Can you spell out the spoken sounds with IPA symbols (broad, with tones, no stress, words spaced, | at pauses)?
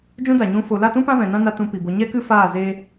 d͡ʒũ˧ da˨ɲũ˧ fo˨la˦˨tũ˦ pã˦vɛ̃˨nã˦na˧ tũ˧pi˨bo˧ ɲɛ˦kɨ˦faː˦˨ zeː˦